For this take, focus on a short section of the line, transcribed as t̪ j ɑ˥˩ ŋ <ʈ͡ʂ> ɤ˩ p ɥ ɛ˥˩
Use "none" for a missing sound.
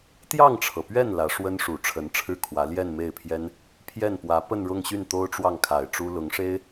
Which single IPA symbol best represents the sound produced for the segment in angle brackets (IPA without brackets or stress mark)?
ʈ͡ʂʰ